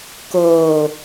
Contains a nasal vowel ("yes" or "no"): no